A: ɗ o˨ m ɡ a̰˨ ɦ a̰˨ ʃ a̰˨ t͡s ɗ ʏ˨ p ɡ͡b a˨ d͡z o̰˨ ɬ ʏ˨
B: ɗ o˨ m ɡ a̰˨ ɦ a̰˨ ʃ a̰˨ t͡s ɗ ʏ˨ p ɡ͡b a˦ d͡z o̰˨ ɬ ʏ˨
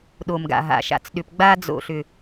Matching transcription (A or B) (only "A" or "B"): B